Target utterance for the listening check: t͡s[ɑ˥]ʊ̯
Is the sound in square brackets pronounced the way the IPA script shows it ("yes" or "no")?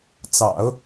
no